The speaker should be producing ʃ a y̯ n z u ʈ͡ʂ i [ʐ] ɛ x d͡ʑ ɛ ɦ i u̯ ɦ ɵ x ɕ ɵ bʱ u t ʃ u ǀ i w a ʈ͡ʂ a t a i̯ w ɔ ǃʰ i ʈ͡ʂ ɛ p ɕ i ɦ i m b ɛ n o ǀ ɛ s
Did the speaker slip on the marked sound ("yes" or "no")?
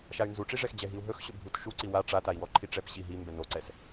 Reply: no